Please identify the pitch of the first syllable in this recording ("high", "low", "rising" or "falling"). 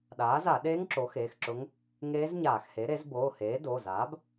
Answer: rising